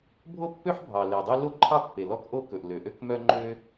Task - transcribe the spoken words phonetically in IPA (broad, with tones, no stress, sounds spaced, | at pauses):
bʱ o˥ pː ø˥ ħ bʱ ɑ˩ l e˩ dˤ i˥ l o˥ ǃʰ ɑ˥ pː e˩ l ɔ˥ k ʔ o˥ k ɵ˩ ʔ l ø˩ ʔ ø˥ k m œ˥ ŋ͡ǃ ø˥